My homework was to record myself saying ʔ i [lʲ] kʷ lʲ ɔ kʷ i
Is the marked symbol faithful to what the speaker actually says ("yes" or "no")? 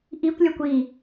no